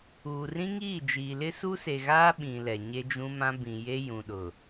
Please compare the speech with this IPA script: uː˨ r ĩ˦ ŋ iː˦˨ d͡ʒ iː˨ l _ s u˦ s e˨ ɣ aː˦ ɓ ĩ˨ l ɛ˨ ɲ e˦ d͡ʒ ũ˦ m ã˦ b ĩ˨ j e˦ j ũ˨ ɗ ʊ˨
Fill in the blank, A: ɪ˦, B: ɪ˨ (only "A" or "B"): A